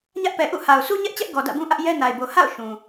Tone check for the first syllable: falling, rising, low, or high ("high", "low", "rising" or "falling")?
high